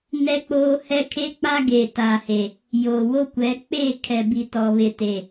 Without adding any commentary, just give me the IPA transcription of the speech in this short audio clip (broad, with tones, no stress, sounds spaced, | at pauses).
n ɛ˦ k͡p oː˦ h ɛ˦ kʰ e˦ k͡p a˦ ɡ eː˨ t aː˨ h e˨ | j oː˨ w o˦ kʷ ɛ˨˦ k͡p e˦˨ kʰ ɛ˨ b i˨ t ɔ˨ β ɪ˨ t e˨